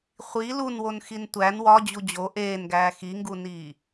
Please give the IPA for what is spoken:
χʷ i l u n w o n x i n tʷ æ n w ɒ d͡ʑ u d͡ʑ o ʔ eː n ɡ æː x i ŋ ɡ u n iː

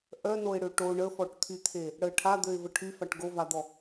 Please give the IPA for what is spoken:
ʔ œ n o ɪ̯ ɽ ø ʈ o ɳ ə f ɔ ʈ t̪ʰ y t̪ʰ e | ɽ ə ʈʰ a d̪ ø ɪ̯ v ə ʈʰ y f a ʈ ɡ o v a d̪ ɔ

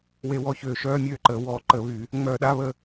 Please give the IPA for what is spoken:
w e˧˩˧ w ɔ˧˩˧ ç øː˨˩ ʃ œː˧˥˧ mʲ øː˦˨ ǃ əː˩˧ w ɔː˧˩˧ ǃ ə˧˩˧ β y˧˩˧ | ŋ͡m œː˧˩˧ ɗ a˧˥˧ β ə˦˨

